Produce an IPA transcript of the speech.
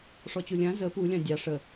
ʂ ɔ t͡ɕ u lʲ ã z ə p u lʲ ɑ̃ dʲ ɑ ʂ ə

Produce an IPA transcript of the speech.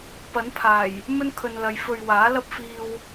p ɐ˨˥ n pʰ aː˨˩ j | m ɵ˥ n kʰ ɵ˨ n l ɐ˨˧ j f ɵ˨ ɥ w aː˨˥ l ɐ˥ p̚ f iː˧ w

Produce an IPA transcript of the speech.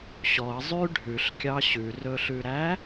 ɕ ɔ ə̯ zˤ y ɖʱ ʉ ɬ kʲ ɑ ɕ ʉ r ɵ ɬ ʉ ɾ æ

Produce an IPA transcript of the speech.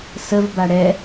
s ə v b a ɽ ɛ

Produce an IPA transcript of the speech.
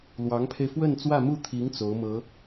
l w ɑ˧˥ ŋ pʰ e˧ ɪ̯ f w ə˥˧ n t͡s w ä˥˧ m u˥˩ t̪ʰ i˧˥ ŋ t͡s o˧˥ ʊ̯ m ɤ˧˥

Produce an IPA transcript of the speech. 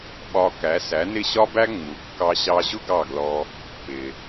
ɓ ɒ˧ k æ˩˥ s æ˩˥ n ɪ˥˩ ɕ ɒ˥ b æ˥ ŋ͡m u˩˥ kː ɑ˧ ɕ ɑ˧ ʑ ʊ˥ ɡ ɑ˥˩ ɡ l ɔ˧ | p ɪ˩

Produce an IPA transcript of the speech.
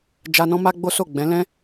d͡ʒ a˧ n ɔ̃˦ m a˦ ɡ͡b o˦ s o˦˨ ɡ͡b ɛ̃˨˦ l ɛ̃˦

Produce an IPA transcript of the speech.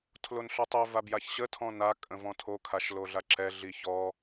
tʰ l o n ɬ œ tˤ ø v a b j a ç ɕ ə tʰ ɔ̃ n a kʼ ə̃ v ɔ̃ tʰ o kʰ a ʃ l o ɮ a ǁ ɛ ɮ i ç ɔ

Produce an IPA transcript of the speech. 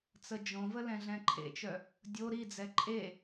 t͡s ə d͡ʒ õ v ə l ɛ̃ ɮ ɛ̃ ǃʰ ḛ t͡ʃ œ | dʲ o ɾ i d͡z ɛ ǃʼ e

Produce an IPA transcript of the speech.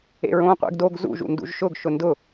ḛ ɹ õː qʷ ḛ ɡ d o ɡ z ṵ ʒ ṵ n d ṵ ʒ ʃ ʊ ɡ ʃ ʊ n d ʊ

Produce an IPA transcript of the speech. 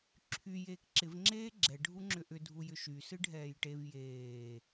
ǁʰ y j eː k ǁ ɪ v ŋ͡ǁ eː ɡ͡ǁ ɛ ɖʱ u ŋ͡ǁ ʏ ʔ ʏ dʱ u j ʏ ʃ y s ɨ ɖʱ ɛː j ʈ e v j eː

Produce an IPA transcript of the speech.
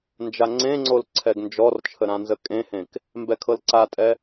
n d͡ʒ a ŋ͡ǀ ẽ ŋ͡ǀ o l ǀʰ ɛ ɡ n d͡ʒ ɔ r t͡ʃʰ ə ɾ ã n z ə kʼ ẽ h ẽ k | m b ɛ kʰ ɤ l ǀ a tʼ ɛ

